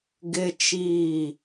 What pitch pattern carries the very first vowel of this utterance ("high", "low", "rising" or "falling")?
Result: high